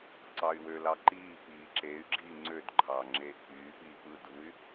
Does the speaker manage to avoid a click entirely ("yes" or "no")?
no